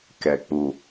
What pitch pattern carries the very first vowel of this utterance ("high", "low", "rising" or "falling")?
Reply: low